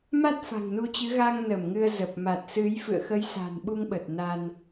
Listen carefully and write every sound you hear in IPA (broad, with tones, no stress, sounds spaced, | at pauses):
m a˦˥ t̚ f a̤˨˩ ŋ n u˧ t͡ɕ ɨ˨˦ ɣ a˧ ŋ n ə˧˩ m ŋ ɨ˧ ə̯ z ə˨˩ p̚ m a˨˩ t̚ s ɨ˨˦ j f ɨ̰˧˨ ə̯ x ə˨˦ j s a̤˨˩ n ɓ u˧ ŋ ɓ ə˨˩ t̚ n a˧ n